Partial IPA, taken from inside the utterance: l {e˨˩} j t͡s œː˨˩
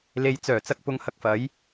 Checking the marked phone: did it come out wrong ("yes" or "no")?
yes